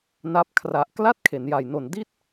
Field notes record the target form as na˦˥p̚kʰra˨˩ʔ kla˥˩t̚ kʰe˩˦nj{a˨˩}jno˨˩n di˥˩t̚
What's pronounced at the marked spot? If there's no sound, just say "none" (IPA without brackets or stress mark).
a˨˩